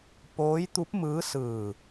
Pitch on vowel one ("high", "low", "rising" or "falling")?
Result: rising